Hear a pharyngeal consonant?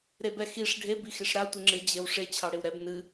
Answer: no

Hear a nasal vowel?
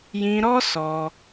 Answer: yes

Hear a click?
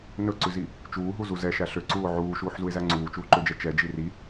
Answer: yes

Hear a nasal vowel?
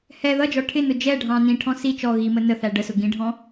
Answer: yes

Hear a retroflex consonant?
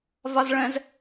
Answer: yes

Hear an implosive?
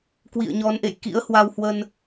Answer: no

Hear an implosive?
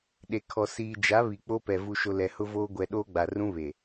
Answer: yes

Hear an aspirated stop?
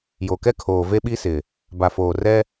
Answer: yes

